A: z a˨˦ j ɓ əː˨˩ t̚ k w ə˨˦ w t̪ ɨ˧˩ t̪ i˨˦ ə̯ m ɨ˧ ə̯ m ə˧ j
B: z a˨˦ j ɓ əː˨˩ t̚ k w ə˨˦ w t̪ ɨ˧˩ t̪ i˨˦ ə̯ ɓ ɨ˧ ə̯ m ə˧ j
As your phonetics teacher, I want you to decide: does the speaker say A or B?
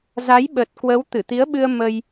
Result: B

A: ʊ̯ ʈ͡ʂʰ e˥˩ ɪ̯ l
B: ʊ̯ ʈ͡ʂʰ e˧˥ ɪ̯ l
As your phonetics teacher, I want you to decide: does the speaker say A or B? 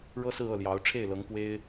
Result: A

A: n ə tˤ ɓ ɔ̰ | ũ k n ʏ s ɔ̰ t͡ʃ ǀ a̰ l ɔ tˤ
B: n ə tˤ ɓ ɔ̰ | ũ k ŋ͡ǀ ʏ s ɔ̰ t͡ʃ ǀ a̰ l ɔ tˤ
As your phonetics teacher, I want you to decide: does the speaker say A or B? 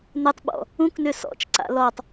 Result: A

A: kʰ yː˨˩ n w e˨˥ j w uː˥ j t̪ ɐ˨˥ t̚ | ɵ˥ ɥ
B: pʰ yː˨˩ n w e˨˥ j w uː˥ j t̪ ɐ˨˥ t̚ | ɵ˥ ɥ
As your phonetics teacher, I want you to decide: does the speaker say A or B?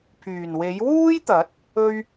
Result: B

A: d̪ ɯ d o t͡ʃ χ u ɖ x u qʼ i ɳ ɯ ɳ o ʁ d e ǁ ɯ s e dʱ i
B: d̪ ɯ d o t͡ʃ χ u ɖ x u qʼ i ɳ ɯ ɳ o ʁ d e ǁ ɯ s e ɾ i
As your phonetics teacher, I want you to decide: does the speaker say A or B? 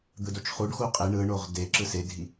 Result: A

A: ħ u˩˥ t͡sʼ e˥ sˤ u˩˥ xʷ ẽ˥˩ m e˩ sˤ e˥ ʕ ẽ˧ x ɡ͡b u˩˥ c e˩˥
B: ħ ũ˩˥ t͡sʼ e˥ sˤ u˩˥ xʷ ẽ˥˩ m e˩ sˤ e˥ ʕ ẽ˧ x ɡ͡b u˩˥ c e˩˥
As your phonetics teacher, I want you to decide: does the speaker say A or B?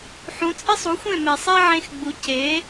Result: B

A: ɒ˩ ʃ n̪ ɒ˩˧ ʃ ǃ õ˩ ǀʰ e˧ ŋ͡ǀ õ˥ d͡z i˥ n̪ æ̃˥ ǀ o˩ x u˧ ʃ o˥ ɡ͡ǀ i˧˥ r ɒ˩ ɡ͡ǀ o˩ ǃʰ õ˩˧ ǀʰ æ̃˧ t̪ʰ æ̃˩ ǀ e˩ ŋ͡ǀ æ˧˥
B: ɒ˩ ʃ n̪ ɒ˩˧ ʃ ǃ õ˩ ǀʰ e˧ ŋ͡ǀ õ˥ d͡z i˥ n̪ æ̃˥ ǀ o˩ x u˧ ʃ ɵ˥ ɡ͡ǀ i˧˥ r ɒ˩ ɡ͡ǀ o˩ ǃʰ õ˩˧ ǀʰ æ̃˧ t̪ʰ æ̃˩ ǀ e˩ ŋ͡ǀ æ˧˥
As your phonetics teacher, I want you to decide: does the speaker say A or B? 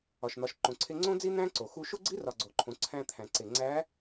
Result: A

